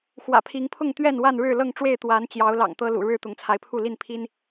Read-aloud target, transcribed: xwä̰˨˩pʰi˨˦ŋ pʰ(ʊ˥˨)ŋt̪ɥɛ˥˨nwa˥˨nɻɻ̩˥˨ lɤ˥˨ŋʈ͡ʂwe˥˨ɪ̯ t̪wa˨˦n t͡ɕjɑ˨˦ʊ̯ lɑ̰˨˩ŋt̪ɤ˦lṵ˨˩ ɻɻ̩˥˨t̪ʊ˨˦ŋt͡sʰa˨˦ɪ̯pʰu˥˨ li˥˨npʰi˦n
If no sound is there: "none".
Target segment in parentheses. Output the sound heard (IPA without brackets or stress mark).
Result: ʊ˥˨